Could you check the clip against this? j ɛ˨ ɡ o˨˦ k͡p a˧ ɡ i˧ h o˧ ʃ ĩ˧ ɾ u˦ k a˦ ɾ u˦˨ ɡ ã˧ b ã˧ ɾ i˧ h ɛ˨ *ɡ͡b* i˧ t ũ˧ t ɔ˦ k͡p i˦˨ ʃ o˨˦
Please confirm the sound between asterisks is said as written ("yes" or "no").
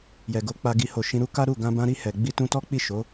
yes